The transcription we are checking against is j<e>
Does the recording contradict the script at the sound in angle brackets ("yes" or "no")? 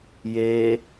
no